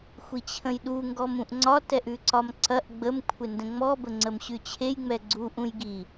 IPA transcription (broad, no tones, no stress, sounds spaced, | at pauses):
xʷ i t͡ɕʰ ə̃ j ɗ u ŋ ɡ ɔ m ũ ʔ ŋ͡ǀ ɒ t ɛ ʔ ʉ ǀ ɒ m ǀ ɐ ʔ ɡ͡b ə m kʷʰ ɪ n d ə̃ ŋ͡m ɔ b ə ŋ͡ǀ ə m ɕ ʉ t͡ɕʰ e j ŋ͡m ɛ ɡ͡ǀ u ʔ ũ j ɡ i